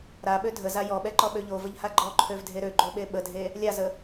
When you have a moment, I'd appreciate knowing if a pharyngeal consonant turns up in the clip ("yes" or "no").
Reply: no